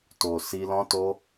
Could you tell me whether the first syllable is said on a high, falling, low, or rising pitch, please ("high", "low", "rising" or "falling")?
low